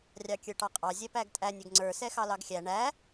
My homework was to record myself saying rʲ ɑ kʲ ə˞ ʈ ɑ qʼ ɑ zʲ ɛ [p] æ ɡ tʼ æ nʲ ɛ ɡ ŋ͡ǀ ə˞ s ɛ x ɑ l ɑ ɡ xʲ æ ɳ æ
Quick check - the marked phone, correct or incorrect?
correct